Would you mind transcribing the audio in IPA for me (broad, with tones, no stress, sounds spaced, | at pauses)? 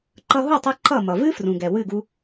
ǃ ʌ˧ ɦ u˥˩ tˤ ɨ˧ ǃ ʌ˥˩ m ʌ˩ v ɨ˥ f r ũ˩ ɡ ɛ˩ w ɨ˥˩ ɡ u˧